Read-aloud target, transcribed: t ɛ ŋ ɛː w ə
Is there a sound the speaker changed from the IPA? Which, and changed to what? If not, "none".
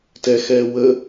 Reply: ŋ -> x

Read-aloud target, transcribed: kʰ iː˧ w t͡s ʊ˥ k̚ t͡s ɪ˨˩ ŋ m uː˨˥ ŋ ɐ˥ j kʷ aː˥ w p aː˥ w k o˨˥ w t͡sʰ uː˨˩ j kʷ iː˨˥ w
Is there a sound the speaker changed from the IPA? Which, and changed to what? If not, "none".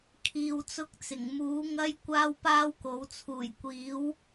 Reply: none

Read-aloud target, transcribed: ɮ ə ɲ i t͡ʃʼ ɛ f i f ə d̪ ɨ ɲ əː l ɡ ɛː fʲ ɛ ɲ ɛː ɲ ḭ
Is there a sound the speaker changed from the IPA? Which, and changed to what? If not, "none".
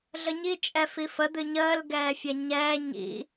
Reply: none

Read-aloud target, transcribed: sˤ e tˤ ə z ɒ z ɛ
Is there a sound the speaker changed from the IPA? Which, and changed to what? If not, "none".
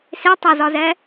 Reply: sˤ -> s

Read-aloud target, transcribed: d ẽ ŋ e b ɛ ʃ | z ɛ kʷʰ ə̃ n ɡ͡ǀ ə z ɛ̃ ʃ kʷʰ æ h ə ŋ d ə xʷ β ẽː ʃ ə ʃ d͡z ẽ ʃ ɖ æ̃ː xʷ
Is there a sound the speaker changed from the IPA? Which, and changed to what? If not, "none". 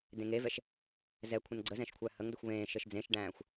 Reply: b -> v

